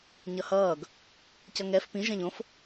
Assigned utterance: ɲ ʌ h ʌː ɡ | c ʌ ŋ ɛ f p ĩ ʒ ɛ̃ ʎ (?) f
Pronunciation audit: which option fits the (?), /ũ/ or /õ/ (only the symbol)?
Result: õ